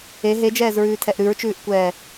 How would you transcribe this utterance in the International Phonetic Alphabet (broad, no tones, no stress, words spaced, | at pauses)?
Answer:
e ɦed͡ʒɛːzɹʉːtʰɛʔ ɾʉɹt͡ʃʉːʔkʷɛː